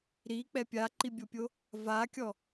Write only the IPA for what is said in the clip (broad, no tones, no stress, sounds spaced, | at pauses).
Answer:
ɾ i k͡p ɛ pʲ a ǃ i bʲ o pʲ o | v a kʲ ɔ